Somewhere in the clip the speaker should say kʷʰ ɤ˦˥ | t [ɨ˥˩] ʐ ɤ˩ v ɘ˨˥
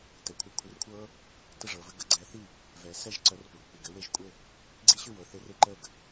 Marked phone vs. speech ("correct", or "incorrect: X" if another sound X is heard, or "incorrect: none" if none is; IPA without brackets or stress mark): incorrect: ə˥˩